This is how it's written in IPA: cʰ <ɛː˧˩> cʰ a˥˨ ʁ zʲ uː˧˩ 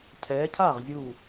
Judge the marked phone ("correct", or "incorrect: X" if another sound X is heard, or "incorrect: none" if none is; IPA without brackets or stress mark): incorrect: ɛː˨˦